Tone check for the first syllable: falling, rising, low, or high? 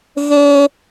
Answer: high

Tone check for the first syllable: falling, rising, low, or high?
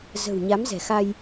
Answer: low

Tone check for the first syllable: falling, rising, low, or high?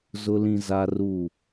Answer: high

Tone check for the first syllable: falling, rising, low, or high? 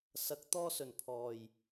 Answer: rising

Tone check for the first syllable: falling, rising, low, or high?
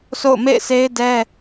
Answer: falling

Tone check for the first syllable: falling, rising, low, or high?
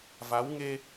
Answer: rising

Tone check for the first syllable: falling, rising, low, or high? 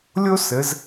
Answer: high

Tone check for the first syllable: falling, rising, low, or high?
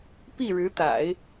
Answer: falling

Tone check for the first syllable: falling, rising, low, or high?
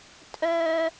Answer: high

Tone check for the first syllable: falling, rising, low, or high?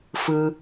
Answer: high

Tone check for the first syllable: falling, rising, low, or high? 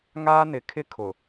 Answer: high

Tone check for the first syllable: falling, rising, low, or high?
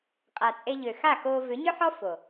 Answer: low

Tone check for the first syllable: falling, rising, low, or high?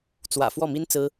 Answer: low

